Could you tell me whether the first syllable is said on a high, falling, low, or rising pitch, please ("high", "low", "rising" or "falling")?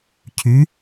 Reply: rising